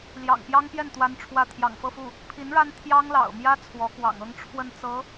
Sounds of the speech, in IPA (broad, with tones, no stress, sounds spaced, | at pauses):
l j ɑ̰˨˩ ŋ p j ɑ˥ ŋ p j ɛ˥˩ n t̪ w a˥ n ʈ͡ʂʰ w ä˥˩ t̪ʰ j ɑ̰˨˩ ŋ f ɤ˥˧ f u˥˩ | pʰ i˧˥ n ɻ a˥ n t̪ʰ j ɑ˥ ŋ l ɑ̰˨˩ ʊ̯ m j ä˥ t͡sʰ w ɔ˧˥ k w ɑ̰˨˩ ŋ ɤ˥ ŋ ʈ͡ʂʰ w ə˥˩ n t͡s ɤ˧˥